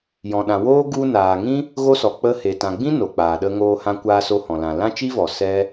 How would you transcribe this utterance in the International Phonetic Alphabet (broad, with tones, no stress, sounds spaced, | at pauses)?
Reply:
j ɔ̃˨ ɗ ã˨ w oː˦ ɡ u˧ n aː˨ ŋ ĩ˦ | ɣ o˦ s ɔ˨ k͡p ə˧ h e˨ t ã˨ ɡ͡b ĩ˦ n o˨ k͡p aː˨ ɗ ə˧ ŋ oː˧ h ã˧ kʷ aː˧ s o˧ h ɔ̃˨ l ã˨ l ã˦ t͡ʃ i˦ v ɔ˨ s ɛ˦